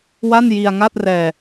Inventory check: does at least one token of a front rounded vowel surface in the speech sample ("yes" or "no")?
no